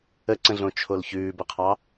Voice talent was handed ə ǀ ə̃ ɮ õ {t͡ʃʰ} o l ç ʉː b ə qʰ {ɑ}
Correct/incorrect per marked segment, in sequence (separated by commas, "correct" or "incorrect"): correct, correct